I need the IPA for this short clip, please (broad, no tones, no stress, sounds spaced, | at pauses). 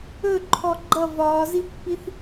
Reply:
ɵ ǃʰ ɔ ɡ͡ǃ ʌ v ɒː z i pː i θ